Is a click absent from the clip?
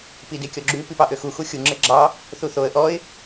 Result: no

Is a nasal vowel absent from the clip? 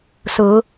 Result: yes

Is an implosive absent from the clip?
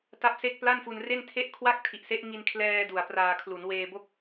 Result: yes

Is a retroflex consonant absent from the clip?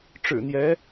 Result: no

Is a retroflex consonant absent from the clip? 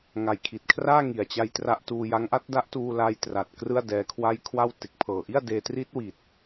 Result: yes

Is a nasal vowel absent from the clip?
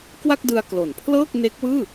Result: yes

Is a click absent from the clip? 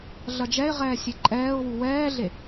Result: no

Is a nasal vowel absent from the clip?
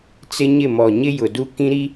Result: no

